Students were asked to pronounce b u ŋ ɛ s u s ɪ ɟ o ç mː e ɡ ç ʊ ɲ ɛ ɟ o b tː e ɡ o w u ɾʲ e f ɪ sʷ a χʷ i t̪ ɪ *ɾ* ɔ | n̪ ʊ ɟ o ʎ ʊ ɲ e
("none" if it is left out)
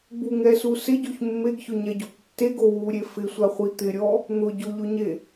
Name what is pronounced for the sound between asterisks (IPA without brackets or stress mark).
ɾʲ